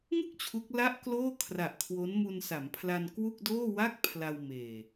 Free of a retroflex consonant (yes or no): yes